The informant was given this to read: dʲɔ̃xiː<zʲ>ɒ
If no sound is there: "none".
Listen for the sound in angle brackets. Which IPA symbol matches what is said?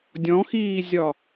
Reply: zʲ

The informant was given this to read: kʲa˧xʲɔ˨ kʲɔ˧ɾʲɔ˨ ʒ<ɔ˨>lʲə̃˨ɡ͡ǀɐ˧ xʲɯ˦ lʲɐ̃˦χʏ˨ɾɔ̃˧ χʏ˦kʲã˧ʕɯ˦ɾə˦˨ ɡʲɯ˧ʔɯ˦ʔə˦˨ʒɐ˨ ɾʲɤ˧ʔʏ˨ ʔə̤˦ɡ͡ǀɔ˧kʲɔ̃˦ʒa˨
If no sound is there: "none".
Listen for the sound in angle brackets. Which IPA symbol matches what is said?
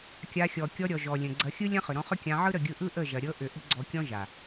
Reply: ɔ˨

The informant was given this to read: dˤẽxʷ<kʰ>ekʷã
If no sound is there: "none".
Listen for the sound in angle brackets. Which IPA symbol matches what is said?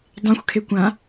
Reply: kʰ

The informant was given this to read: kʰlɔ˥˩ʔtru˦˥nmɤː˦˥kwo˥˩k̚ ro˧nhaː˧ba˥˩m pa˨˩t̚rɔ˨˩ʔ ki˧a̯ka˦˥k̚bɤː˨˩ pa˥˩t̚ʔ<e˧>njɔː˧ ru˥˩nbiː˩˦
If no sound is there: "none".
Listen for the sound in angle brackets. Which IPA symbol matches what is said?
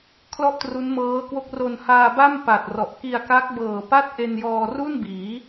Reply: e˧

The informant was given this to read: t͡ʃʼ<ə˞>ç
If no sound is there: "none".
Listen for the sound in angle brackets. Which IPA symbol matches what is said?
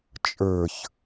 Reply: ə˞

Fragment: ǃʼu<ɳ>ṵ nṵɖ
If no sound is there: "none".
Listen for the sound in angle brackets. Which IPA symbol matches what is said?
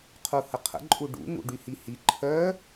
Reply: ɖ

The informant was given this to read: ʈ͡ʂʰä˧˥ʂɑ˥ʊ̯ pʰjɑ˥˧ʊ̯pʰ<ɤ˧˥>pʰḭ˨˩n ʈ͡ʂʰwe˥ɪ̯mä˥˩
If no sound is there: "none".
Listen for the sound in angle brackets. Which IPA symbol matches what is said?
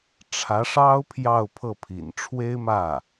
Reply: ɤ˥˩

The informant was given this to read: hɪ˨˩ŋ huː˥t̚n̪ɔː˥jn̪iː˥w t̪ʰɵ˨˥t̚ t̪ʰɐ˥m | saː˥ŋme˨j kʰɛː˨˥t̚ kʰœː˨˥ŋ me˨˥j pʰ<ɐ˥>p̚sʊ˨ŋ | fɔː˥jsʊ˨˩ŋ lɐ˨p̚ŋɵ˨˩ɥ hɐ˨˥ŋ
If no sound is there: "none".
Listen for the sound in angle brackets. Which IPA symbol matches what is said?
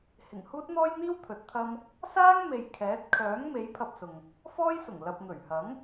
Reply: ɐ˧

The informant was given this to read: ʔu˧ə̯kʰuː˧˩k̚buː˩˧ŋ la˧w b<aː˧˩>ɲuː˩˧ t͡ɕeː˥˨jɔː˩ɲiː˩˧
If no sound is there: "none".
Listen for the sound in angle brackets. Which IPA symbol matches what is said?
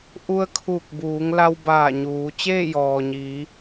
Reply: aː˧˩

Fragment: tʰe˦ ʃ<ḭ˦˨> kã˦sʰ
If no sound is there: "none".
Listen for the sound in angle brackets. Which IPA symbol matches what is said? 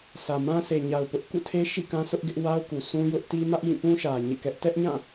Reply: ḭ˦˨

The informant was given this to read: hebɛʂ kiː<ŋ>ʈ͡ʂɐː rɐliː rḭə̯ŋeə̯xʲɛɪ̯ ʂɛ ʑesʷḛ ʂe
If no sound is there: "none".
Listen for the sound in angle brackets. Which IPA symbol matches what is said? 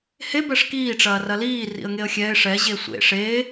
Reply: none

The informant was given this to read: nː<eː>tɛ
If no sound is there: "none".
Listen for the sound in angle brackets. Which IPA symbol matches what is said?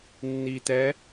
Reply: iː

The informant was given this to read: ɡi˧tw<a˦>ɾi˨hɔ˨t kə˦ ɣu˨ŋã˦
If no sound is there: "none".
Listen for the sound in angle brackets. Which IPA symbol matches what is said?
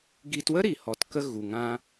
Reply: ə˦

